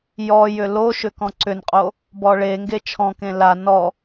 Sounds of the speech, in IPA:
j ɔ j ʏ l o ʃ ʏ k ɔ̃ ǀ ʏ n qʼ o | b ɔ ɭ e ŋ ɡ e t͡ʃʰ ɔ̃ k ẽ l a n ɔ

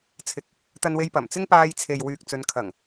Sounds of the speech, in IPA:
t͡sʰ ɪ˨˥ k̚ | t̪ ɐ˧ n w e˧ j p ɐ˨˩ m t͡s ɪ˥ ŋ p aː˧ j t͡sʰ e˨ j w yː˨ k̚ t͡s ɵ˨˧ n kʰ ɐ˨˩ ŋ

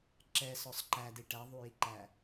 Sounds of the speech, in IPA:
ǁ ɛ s ɔ sˤ ǃ æ d i ʈ æ ðˤ u j i ǃ æ

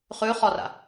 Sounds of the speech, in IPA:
χ ʉ χ ɔ r a̰

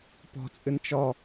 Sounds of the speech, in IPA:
p ɔ̤ t͡sʼ ɨ n t͡ʃ ɔ

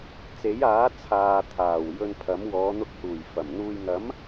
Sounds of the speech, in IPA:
t͡s e˨˥ j aː˨˥ t͡sʰ aː˨ t̪ʰ aː˨˩ w j ɵ˧ n pʰ ɐ˨˥ m w ɔː˨˧ n̪ ʊ˧ k̚ h uː˨˩ j f ɐ˨˩ m n̪ uː˨ j ŋ ɐ˨˥ m

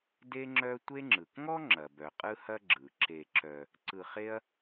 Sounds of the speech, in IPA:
d e˦ ŋ͡ǁ œ˦ tʷ e˦ ŋ͡ǁ ɯ˩ k ŋ ɔ˥ ŋ͡ǁ ɐ˩ b œ˩ qʼ ɯ˦ h ɐ˦ ɡ͡ǁ ɯ˩ ǁ e˨ ǁ œ˨ | ǀ ɯ˨ χ e˦ ɐ̯

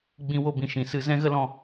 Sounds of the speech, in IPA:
ɡ͡b ĩ˧ w o˧ b ĩ˨ ʃ ĩ˨ s ɨ˧ z ɛ̃˦ ɣ ə˦ l ɔ̃˧

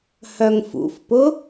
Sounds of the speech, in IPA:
h œ ŋ f ṵ f p ʊ

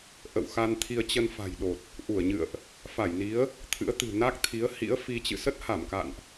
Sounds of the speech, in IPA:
ʔ ə̰˧˨ w x a˧ n t̪ʰ i˧ ə̯ t͡ɕ ə˧ n f a̤˨˩ j ɗ o˨˩ t̚ | ʔ u˧˩ ə̯ ɲ ɨ̰˧˨ ə̯ ʔ | f a˧˩ j n i˨˦ ə̯ | t̪ʰ ɨ̰˧˥ ə̯ t̪ ɨ̤˨˩ n a˦˥ k̚ t̪ʰ i˨˦ ə̯ h ḭ˧˥ ə̯ f i˧ t͡ɕ ɨ̰˧˨ s ə˦˥ t̚ h a˧˩ m k a̰˧˨ n ʔ

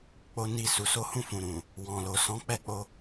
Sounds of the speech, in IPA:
k͡p o˧ n i˧ s u˨ s o˨˦ h ũ˦˨ f ũ˨ ɾ ũ˨ | w ɔ̃˨ l o˨ s ɔ̃˨˦ k͡p ɛ˦˨ k͡p o˧

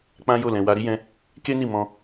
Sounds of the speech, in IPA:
k͡p ã˦ j o˦˨ l ɛ̃˨ w a˧ ɾ i˦ j ɛ̃˦ | k e˦ n i˦˨ m ɔ̃˧

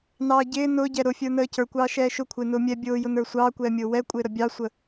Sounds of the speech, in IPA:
n ɑː ɟ ɪː n ʊː ɟ ɛ ɾ ʊ fʲ ə˞ n əː c ə˞ kʷ ɑː ʃ ɛː ʃ ʊ kʷʰ ɪː n ʊː mʲ ɛ bʲ ʊː j ʊ n ə˞ sʷ ɑː kʷ ɛː mʲ ʊː w ɛ kʷʼ ɪː ɾ ə bʲ ɑ sʷ ə

